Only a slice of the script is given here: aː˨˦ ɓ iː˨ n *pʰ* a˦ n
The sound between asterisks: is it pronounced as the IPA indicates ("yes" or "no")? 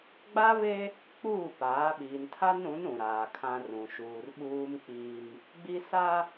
no